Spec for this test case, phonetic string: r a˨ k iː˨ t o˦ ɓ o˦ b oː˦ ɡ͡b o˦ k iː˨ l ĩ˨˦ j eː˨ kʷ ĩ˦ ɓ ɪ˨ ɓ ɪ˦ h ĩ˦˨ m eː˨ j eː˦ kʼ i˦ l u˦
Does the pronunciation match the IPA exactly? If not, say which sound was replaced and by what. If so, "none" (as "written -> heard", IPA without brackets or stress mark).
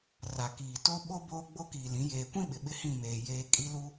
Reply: none